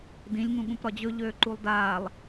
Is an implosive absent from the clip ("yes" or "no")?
no